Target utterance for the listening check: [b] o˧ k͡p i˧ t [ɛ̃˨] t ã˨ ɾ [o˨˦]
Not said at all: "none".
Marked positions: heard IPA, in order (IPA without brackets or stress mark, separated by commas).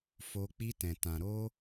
f, ɛ̃˨, o˧